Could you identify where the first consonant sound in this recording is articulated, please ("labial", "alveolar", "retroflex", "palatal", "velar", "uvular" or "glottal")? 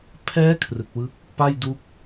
labial